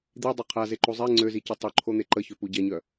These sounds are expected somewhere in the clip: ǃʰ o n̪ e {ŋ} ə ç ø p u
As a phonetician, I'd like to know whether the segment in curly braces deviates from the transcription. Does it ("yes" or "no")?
yes